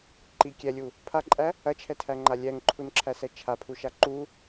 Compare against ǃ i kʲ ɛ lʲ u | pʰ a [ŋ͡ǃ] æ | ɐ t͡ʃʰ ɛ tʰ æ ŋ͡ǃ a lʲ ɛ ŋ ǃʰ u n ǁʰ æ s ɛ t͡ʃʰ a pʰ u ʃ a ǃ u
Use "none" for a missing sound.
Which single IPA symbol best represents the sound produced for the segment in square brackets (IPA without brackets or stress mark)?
ǃʼ